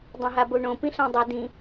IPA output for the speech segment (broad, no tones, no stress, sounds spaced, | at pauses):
dˤ õ ɦ a b o ɳ õ p ĩ ɬ ã dˤ ʌ d ĩ